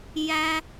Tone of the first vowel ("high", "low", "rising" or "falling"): high